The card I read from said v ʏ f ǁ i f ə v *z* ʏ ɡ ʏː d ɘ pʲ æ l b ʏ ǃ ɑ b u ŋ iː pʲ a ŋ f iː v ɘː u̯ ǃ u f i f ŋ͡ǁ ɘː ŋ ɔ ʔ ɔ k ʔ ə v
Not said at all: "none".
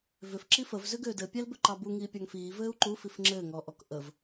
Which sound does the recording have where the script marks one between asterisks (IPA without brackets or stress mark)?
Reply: z